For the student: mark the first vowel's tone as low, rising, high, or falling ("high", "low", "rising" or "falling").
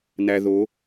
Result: low